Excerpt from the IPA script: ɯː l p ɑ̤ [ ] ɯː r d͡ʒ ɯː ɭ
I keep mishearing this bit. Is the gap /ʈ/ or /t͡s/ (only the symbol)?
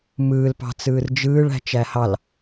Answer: t͡s